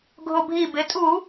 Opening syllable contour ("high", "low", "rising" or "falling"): low